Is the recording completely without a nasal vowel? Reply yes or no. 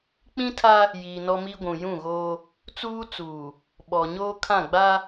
no